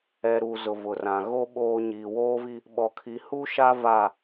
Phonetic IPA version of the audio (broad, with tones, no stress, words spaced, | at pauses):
ɛ˨ɾu˨ zʊ˨vʊ˨rã˨ ɣo˦ ɓoː˦ ɲiː˨woː˦vi˦ | ɓɔ˨kʰi˨hu˦ʃa˦ va˦˨